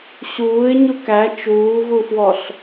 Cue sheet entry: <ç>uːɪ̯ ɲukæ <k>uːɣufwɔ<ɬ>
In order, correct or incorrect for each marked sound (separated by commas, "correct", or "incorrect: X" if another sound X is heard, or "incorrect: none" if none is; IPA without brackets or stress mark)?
incorrect: ɕ, incorrect: t͡ʃ, correct